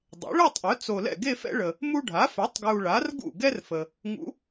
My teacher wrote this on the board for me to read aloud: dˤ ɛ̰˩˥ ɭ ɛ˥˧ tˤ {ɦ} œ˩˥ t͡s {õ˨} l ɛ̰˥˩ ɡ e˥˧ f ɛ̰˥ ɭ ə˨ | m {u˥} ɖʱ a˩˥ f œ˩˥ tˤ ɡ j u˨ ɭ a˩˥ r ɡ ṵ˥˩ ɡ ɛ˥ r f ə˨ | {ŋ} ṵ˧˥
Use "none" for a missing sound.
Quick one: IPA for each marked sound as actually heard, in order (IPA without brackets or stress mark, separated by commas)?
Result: ʔ, o˨, u˥, ŋ